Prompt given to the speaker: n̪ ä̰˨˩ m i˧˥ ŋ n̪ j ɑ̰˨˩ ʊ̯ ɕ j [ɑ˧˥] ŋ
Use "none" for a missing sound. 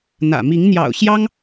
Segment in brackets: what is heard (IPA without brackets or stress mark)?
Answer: ɑ˥